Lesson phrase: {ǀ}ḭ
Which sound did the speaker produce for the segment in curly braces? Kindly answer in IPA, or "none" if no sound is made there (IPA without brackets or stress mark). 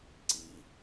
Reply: ǀ